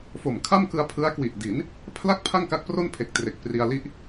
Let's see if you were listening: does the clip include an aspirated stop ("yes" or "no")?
yes